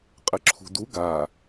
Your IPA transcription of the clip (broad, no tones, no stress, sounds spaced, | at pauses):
qʼ ɘ ǁʰ ṳ d u ɡ a